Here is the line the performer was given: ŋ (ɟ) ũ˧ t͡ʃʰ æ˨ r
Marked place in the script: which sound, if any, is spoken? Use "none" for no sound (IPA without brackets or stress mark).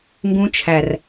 ɡ